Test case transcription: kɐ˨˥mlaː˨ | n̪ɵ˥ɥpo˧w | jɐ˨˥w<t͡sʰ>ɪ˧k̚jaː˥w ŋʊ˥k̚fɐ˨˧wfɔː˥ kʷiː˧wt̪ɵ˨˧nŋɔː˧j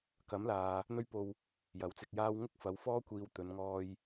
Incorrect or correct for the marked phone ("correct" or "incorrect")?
incorrect